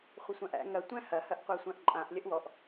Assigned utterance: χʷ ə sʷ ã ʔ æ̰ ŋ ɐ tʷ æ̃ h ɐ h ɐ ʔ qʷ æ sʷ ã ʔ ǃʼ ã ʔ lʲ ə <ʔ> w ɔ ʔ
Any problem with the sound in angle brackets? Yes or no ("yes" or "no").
no